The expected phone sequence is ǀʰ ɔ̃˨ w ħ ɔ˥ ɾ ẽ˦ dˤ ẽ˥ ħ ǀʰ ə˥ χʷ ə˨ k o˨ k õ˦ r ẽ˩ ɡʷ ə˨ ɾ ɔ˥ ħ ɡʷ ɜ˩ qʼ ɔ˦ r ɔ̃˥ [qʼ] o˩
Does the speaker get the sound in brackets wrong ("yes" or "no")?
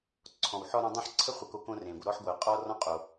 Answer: no